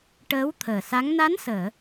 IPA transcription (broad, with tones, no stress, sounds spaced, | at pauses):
ʈ əː˧˥ w t̪ʰ əː˨˩ s a˧˥ ŋ n a˧˥ n s əː˨˩˨